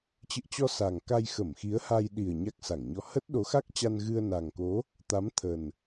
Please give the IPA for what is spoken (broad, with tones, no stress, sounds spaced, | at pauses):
t͡ɕ ɨ̰˧˨ ə̯ t͡ɕ ɔ˧ s a˨˩ ŋ k a˧ j x ə˧˩ m x i˨˦ ə̯ h a˧ j ɗ i˨˩ ə̯ ɲ a˦˥ k̚ s a˧˩ ŋ ɲ ɔ˧ h ə˦˥ t̚ ɗ o˨˦ x a˦˥ k̚ t͡ɕ a˧ n ɣ ɨ˧ ə̯ n a˨˩ ŋ k o˨˦ | t̪ a˨˦ m t̪ʰ ə˨˩ n